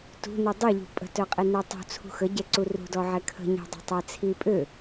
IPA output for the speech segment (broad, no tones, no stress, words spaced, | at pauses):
tṳni dˤuʎṳ pʼə̤tœqʼi nɛtˤṳ t͡sʰṳxəɟɛǀu rṳdɔʕɛ kʰə̤ɲɛ̤ dˤə̤tˤɛt͡sʰi pʼø